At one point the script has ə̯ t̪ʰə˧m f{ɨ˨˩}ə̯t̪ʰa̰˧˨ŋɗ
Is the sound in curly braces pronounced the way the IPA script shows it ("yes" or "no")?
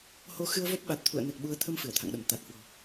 no